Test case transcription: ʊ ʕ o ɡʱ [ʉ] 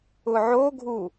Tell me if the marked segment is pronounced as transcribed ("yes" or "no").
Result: no